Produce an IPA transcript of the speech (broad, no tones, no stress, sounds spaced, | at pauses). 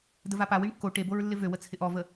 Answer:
d ə v a p a w i ɳ kː o ʈ e b o ɹ lː ɪ v ø w ə t͡sʰ ɪ ʔ ɔ v ə